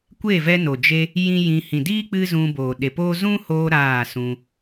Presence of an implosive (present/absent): present